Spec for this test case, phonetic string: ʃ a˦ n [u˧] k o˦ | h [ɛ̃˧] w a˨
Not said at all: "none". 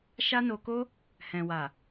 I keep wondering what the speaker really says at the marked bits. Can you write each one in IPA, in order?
o˧, ɛ̃˨

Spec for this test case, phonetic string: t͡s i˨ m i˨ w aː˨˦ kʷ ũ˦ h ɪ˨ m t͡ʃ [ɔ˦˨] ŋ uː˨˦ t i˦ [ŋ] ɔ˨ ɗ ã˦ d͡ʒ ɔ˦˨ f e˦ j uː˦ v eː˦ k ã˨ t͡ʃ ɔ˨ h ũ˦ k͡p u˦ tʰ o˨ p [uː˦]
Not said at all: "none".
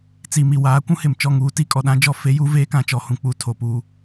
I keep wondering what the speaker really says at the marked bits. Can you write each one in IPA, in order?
ɔ˦˨, kʼ, uː˦

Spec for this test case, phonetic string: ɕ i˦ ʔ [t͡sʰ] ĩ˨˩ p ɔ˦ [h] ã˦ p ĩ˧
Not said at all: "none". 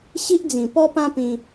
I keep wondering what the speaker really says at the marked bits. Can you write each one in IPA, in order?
d͡z, p

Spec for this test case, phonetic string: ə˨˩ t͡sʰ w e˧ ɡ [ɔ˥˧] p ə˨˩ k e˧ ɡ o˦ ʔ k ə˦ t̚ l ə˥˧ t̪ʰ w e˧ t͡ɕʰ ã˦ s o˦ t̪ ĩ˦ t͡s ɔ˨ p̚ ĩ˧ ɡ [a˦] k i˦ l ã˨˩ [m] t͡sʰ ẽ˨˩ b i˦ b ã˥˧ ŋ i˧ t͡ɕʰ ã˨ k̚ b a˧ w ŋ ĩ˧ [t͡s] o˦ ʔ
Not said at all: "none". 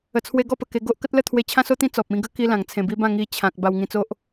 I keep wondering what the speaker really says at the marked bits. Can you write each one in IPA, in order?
ɔ˥˧, ə˦, ŋ, t͡s

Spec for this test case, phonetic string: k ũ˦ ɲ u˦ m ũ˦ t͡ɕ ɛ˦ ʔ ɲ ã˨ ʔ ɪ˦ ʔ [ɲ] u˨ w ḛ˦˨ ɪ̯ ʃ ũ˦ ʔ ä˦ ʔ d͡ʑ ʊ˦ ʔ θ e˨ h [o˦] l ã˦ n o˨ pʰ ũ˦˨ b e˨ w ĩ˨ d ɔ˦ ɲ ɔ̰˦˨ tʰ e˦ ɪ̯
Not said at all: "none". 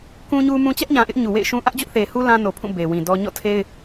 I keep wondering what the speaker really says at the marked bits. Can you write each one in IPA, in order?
ɲ, u˦

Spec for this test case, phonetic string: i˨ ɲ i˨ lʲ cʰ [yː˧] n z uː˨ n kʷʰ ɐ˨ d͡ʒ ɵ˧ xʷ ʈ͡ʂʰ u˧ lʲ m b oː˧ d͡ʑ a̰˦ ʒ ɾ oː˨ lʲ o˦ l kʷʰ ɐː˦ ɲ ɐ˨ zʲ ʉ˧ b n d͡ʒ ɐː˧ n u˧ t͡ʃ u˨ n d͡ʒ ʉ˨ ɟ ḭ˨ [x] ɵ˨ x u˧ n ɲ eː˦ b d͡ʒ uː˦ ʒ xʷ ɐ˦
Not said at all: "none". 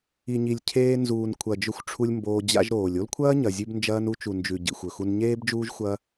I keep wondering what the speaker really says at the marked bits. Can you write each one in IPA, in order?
eː˧, xʷ

